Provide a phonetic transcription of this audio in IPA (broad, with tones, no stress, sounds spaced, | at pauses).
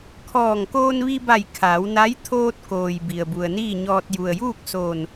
kʰ ɔː˧˩ ŋ k oː˧ n ʋ i˧ b a˧˩ j kʰ aː˩˧ w n a˧˥ j t̪ʰ oː˧ t̚ k oː˩ j b i˩ ə̯ b u˩ ə̯ n iː˥˨ ɲ ɔː˧ t̚ j u˩ ə̯ j uː˥˨ k̚ s oː˧˩ n